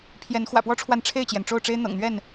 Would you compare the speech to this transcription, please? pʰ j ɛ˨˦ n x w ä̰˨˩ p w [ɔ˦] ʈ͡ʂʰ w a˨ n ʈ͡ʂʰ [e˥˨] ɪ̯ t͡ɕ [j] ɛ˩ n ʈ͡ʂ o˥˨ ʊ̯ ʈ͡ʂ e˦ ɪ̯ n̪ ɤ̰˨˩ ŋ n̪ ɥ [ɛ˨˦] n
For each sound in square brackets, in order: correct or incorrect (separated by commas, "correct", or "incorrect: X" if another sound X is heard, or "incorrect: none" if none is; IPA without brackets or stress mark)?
correct, correct, correct, incorrect: ɛ˥˨